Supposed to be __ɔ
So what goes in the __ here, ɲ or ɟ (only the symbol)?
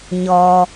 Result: ɲ